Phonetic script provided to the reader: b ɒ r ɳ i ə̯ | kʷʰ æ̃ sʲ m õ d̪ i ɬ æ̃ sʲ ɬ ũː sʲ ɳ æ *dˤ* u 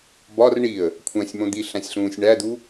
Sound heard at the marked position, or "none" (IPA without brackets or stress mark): d̪